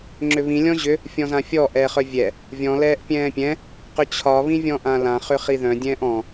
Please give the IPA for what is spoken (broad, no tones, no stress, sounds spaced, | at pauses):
ŋ͡ǁ ʏ β ĩ lʲ ɔ̃ ʑ ʏ | fʲ ɔ̃ z ã fʲ ɔ ʔ ɛː χ œ vʲ ɛ | vʲ ɔ̃ l ɛː ʔ pʲ ɛ̃ː pʲ ɛ̃ | q ʏ t͡ɕʰ ɒ β ĩ vʲ ɔ̃ ʔ ã l ã χ ʏ χ i ð œ̃ dʲ ɛ̃ː ʔ ɔ̃